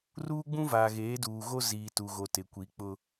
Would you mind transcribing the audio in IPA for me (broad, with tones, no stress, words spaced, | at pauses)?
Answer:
ruː˦ɡ͡bũ˦vaː˨ ɣeː˨˦duː˨ɣo˦ ziː˨tu˨ɣo˨ tɪ˨kʷi˨˦k͡pʊ˦